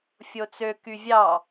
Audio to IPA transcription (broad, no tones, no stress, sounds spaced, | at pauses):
fʲ o t͡s ø k y vʲ ɑ